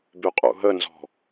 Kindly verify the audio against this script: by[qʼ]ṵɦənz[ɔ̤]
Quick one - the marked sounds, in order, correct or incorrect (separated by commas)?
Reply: correct, correct